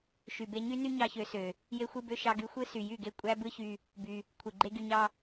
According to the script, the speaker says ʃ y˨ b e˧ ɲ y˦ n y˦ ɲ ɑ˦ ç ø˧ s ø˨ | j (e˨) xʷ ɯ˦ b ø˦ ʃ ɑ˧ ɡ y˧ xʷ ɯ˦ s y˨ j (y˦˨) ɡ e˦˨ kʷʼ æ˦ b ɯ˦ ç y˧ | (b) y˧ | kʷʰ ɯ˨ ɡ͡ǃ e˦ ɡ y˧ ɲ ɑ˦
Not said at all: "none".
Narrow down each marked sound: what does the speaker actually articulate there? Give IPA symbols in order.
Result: e˦, y˦˨, b

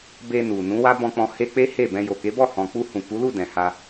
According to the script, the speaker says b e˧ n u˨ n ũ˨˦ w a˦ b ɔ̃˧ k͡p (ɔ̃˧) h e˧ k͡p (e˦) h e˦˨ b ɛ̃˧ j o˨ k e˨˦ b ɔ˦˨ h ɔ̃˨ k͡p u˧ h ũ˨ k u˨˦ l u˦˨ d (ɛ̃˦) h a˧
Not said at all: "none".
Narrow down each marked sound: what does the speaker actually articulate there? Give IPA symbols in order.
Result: ɔ̃˧, e˦, ɛ̃˨

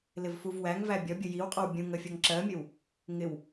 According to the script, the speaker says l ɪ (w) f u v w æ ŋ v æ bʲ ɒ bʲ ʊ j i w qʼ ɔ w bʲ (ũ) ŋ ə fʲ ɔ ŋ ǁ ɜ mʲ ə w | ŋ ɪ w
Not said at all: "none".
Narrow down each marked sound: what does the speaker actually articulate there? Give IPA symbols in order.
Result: v, ũ

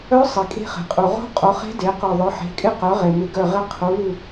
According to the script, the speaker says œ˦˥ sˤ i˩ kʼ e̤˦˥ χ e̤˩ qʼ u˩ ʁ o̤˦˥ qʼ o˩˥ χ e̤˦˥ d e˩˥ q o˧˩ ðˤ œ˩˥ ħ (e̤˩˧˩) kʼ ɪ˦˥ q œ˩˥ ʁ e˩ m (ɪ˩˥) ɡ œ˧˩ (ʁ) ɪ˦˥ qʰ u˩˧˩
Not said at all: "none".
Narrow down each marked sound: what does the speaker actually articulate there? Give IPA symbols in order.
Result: e̤˩˧˩, ɪ˩˥, ʁ

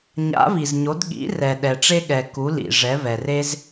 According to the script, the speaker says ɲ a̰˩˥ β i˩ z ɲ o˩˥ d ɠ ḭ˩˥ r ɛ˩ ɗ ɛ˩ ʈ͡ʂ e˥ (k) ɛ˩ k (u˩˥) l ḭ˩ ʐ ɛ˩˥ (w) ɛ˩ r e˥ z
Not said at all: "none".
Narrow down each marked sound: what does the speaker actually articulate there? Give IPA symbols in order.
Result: ɠ, u˩˥, β

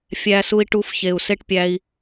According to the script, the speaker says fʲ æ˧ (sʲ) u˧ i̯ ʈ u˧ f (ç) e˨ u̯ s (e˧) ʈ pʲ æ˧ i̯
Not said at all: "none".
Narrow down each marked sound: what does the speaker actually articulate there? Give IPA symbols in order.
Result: s, ç, e˦

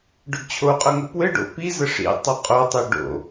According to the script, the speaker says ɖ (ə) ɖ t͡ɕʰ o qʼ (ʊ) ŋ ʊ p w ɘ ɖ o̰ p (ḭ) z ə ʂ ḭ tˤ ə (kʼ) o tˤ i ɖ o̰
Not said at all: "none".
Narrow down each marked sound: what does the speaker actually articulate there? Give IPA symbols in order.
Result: ʊ, ʊ, i, qʼ

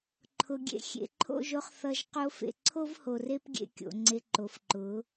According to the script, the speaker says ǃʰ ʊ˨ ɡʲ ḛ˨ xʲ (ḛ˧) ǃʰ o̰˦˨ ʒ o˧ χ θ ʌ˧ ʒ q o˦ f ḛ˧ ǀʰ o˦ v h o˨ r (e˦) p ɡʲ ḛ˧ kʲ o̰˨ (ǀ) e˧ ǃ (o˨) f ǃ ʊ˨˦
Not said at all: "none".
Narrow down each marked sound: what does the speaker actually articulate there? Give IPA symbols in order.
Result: ḛ˨, e˦, ŋ͡ǀ, o˨

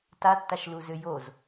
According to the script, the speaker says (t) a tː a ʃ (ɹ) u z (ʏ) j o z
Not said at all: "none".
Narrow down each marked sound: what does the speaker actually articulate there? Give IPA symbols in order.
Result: t, l, ʏ

